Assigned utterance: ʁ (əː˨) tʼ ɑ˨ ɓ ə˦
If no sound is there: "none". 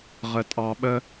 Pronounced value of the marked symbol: ə˨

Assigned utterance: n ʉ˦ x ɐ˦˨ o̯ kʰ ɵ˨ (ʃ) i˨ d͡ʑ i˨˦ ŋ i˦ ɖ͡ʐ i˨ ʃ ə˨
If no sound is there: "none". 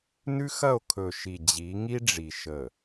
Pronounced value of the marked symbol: ʃ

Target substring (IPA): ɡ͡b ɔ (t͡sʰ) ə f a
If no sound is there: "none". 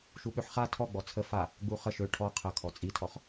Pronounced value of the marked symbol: t͡sʰ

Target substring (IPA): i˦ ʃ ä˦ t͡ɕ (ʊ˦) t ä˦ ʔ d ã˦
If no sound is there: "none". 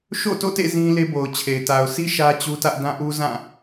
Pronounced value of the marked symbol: u˦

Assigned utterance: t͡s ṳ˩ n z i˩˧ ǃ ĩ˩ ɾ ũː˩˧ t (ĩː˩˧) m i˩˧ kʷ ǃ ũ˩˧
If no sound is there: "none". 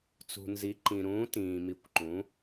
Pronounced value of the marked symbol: ĩː˩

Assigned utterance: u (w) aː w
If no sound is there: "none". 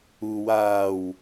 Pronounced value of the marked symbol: w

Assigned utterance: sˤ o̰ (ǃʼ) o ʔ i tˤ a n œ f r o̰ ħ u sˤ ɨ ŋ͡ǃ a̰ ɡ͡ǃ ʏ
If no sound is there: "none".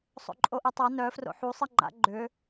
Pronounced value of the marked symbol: ǃʼ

